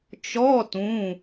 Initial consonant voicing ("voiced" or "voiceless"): voiceless